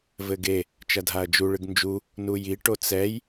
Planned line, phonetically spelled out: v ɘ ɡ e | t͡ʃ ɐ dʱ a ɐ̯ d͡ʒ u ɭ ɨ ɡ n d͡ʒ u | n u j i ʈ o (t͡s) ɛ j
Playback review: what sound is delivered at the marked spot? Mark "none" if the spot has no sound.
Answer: t͡s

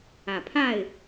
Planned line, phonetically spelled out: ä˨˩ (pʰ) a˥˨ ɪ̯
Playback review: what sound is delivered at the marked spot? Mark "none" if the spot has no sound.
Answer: pʰ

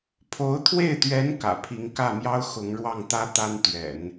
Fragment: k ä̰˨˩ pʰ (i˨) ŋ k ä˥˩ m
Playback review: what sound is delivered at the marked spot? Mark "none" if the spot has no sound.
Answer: i˧˥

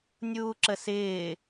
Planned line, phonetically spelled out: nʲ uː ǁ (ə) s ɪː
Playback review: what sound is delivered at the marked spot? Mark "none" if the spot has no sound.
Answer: ə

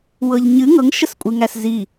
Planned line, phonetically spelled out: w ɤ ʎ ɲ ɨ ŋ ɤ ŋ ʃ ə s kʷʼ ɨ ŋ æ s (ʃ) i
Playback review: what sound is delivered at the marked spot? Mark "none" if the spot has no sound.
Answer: z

